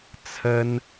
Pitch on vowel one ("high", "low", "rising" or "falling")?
high